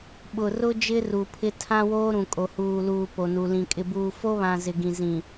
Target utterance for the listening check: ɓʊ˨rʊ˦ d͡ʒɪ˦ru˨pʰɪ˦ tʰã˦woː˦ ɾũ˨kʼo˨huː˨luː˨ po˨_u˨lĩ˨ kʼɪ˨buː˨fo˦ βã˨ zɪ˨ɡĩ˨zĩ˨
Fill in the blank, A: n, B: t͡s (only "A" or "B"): A